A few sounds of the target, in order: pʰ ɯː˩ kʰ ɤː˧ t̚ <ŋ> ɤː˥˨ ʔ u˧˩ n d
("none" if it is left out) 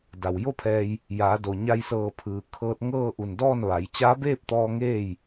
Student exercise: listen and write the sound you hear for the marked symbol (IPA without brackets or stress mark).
ŋ